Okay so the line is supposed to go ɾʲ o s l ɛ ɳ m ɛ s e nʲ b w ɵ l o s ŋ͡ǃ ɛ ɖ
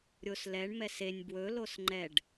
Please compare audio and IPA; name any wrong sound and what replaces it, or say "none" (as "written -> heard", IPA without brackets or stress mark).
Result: none